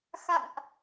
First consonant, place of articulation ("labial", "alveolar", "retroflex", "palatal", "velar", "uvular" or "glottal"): velar